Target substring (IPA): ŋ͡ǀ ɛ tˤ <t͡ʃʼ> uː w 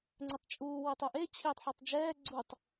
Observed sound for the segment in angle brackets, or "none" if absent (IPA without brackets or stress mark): t͡ʃʼ